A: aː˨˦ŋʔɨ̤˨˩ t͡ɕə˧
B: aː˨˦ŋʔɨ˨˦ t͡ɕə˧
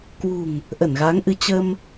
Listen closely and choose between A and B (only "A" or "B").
B